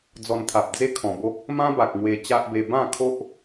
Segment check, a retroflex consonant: absent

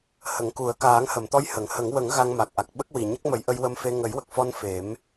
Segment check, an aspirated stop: absent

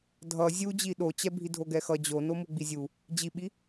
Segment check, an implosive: present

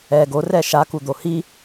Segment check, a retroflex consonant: absent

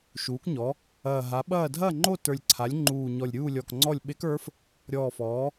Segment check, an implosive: present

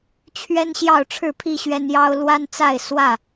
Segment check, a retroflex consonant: present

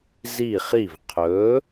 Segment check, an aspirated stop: present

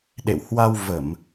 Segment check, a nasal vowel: absent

